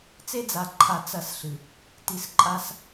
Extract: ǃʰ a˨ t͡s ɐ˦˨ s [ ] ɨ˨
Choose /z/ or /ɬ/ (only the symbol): ɬ